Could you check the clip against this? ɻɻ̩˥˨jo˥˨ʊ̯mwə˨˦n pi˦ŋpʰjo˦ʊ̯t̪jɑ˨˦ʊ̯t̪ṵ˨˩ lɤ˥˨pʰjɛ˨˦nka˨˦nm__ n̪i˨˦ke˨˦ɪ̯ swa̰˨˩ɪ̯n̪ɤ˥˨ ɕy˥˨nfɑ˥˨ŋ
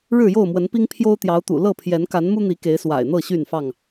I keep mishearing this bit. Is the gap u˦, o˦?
u˦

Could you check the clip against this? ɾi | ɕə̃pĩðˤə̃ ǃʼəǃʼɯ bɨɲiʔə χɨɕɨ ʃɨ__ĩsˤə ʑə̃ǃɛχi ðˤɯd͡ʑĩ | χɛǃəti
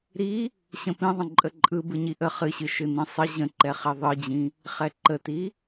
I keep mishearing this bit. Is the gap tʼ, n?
n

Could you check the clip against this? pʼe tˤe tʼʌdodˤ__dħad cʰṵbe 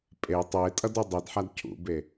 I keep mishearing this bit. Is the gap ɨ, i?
i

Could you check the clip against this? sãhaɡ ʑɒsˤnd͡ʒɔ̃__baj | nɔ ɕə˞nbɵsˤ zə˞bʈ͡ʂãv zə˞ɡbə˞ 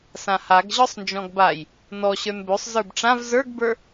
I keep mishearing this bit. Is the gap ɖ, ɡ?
ɡ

